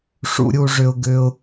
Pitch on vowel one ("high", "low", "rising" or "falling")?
high